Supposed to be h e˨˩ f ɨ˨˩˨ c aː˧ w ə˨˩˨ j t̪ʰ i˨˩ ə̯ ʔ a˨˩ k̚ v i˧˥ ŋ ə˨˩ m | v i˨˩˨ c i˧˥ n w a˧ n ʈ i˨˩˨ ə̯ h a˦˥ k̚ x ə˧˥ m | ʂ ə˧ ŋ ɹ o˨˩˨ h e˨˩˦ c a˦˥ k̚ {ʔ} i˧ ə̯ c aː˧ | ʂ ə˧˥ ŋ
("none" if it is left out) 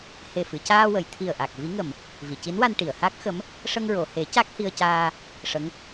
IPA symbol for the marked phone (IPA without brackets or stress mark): h